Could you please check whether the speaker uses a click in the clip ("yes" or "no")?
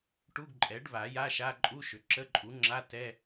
yes